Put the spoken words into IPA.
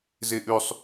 z e ʔ ʉ sˤ

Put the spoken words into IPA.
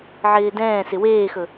ʕ ɪː d ɛ̃ː s ɪ w eː x ɵ

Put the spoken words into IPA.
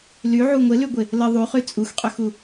l y ʕ u ŋʷ ɪ l y ɡʷ ɪ | l ə ðˤ u χ y t͡sʼ u x qʼ ø x u

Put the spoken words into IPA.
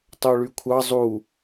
tˤ o ɭ y kʷʰ ɑ zˤ u

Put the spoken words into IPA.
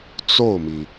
t͡s o˥˩ ʊ̯ m i˩

